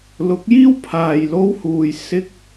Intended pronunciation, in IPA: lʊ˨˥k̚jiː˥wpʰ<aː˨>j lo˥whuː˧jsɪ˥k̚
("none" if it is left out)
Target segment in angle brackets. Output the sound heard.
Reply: aː˨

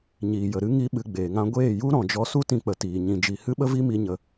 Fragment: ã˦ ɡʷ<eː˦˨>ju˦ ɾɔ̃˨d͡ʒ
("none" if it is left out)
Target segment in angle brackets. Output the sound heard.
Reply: eː˦˨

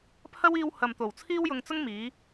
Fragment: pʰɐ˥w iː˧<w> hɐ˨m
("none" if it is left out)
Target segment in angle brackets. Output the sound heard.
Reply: w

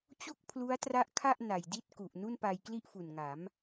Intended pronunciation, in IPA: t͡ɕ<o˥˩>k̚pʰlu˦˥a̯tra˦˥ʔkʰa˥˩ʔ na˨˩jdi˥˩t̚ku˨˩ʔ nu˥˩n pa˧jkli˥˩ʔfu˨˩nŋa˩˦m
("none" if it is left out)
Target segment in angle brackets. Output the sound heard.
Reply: o˥˩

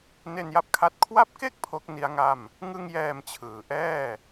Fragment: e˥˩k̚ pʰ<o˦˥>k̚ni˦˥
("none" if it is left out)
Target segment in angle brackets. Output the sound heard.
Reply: o˦˥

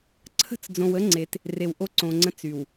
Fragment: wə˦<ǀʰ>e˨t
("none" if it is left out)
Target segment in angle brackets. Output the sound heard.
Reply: ŋ͡ǀ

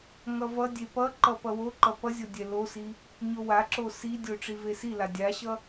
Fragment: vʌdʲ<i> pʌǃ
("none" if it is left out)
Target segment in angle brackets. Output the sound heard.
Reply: e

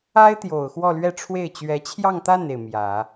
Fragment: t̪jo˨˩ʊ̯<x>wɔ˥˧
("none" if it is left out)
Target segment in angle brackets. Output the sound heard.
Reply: x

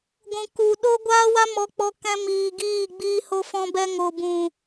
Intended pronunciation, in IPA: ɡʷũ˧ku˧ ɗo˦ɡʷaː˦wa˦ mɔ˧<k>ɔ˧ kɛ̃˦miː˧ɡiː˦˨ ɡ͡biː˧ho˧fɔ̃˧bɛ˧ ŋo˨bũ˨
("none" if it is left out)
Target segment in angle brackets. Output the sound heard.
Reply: k͡p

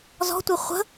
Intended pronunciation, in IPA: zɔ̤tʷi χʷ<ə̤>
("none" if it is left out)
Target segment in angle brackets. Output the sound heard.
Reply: ə̤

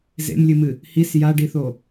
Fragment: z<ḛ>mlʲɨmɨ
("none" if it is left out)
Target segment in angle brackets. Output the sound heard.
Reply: ḛ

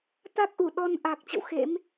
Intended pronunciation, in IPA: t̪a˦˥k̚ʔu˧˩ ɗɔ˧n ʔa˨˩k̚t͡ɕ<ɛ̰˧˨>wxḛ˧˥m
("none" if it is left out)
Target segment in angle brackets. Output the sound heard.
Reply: ə̰˧˨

